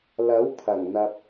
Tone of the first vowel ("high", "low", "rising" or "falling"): rising